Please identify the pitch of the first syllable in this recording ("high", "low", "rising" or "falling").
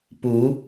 rising